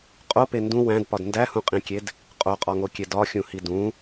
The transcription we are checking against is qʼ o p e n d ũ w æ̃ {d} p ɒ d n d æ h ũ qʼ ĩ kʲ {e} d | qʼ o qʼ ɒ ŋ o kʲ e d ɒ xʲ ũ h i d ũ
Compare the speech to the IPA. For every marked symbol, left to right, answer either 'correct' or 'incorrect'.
correct, correct

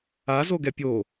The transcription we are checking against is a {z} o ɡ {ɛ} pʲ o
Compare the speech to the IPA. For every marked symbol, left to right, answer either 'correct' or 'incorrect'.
correct, correct

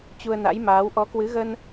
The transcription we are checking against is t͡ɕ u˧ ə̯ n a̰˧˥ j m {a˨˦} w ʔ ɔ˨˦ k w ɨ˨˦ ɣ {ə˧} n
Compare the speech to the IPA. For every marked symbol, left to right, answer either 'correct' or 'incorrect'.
incorrect: aː˨˦, correct

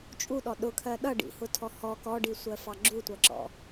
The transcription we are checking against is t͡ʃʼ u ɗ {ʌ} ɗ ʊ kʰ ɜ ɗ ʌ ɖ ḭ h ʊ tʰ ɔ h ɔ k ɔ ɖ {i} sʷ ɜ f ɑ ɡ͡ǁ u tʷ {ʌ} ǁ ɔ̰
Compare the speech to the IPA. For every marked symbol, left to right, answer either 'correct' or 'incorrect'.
incorrect: ɔ, correct, correct

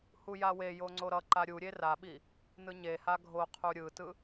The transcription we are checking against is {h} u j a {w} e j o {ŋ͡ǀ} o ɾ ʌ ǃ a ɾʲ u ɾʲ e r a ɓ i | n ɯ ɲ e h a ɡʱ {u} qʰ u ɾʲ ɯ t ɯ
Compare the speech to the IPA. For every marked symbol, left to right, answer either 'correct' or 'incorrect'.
correct, correct, correct, incorrect: o

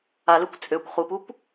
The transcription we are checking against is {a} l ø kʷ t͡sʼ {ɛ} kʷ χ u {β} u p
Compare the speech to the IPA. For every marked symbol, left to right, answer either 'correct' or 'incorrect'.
correct, incorrect: ø, incorrect: p

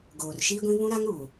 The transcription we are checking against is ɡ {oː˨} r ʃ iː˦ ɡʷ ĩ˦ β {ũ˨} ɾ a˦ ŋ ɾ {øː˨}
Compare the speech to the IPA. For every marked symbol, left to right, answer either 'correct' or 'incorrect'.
correct, incorrect: ũ˦, incorrect: uː˨

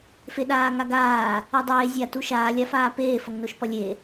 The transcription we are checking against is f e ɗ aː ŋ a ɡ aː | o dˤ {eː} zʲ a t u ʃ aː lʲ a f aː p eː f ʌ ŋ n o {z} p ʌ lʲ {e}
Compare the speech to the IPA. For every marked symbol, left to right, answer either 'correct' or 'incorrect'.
correct, incorrect: ʃ, correct

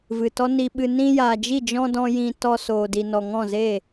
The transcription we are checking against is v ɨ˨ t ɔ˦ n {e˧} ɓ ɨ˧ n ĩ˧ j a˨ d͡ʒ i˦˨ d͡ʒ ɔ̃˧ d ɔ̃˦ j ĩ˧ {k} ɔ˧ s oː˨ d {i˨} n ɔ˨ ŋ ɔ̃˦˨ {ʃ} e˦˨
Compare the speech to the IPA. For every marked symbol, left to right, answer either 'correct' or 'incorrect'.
incorrect: i˧, incorrect: t, correct, incorrect: z

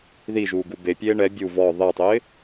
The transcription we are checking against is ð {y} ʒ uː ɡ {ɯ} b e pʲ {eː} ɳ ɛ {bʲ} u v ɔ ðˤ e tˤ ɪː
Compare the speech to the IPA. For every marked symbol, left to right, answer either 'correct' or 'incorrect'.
incorrect: i, incorrect: u, correct, correct

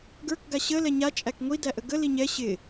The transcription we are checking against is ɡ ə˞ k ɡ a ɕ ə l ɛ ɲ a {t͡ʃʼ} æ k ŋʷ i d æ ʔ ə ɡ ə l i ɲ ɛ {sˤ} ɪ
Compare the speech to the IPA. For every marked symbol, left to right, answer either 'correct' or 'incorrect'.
correct, incorrect: ɕ

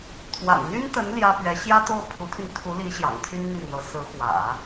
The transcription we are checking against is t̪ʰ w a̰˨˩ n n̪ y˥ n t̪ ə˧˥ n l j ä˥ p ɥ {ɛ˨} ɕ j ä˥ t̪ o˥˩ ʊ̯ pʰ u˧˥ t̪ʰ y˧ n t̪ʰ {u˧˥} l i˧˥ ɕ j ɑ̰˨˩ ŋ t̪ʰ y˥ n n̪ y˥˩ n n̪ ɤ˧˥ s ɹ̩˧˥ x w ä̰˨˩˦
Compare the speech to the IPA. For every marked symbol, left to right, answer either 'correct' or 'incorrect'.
incorrect: ɛ˧˥, correct

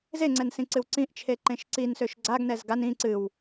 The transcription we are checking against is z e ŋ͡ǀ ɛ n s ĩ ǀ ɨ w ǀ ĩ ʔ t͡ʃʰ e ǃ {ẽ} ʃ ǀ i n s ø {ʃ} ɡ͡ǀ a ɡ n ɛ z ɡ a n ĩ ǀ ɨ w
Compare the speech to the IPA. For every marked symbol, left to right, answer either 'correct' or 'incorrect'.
correct, correct

